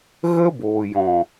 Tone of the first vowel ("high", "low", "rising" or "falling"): high